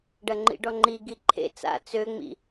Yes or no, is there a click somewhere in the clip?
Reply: yes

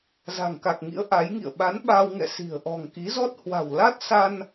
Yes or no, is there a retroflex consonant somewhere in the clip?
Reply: no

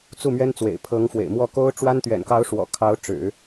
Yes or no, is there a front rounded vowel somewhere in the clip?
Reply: no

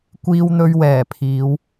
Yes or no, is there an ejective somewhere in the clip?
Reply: no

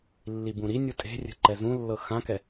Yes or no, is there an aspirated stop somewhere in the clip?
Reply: no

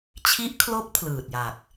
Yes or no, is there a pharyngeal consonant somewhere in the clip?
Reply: no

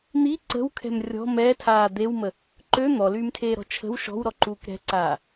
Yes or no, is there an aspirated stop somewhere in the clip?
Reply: yes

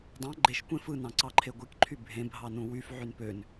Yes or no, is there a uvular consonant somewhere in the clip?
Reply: no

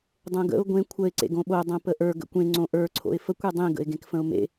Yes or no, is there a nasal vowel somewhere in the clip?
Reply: yes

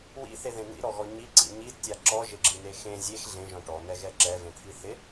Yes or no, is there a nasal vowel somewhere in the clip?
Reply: yes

